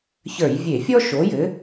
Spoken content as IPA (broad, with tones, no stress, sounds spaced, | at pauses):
ç ə˞˧˩˧ j vʲ e˧˩˧ fʲ ɔ˥ ʃ o˨˥ j ɘ˨˥